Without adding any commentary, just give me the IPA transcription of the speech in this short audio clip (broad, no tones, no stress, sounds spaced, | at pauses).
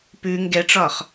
p ʉ ŋ ɡ ɛ ʈ͡ʂ ɒ χ